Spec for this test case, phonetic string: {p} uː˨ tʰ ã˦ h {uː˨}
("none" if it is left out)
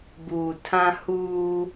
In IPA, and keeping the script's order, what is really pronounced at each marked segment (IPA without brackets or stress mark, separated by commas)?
b, uː˦